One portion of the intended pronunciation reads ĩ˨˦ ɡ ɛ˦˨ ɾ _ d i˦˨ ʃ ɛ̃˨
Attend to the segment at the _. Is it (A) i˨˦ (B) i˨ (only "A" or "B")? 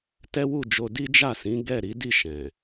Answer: A